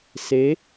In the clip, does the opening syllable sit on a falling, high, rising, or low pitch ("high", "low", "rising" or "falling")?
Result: rising